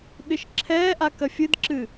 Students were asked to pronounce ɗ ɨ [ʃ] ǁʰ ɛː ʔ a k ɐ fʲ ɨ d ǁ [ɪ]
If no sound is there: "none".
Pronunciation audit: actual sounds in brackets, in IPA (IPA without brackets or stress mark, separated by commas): ʃ, ɨ